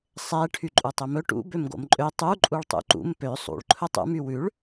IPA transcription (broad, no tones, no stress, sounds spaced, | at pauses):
sˤ ɛ ʈʰ y ǃʼ u tˤ ɵ m ɵ ʈ ṵ b ø m ɡ o̰ m ǃʼ ø tˤ u ǃʼ u ɭ tˤ ṵ ǃ ṵ m p ø sˤ ṵ ɭ ǃʰ ɵ tˤ ṵ m y w ʉ ɭ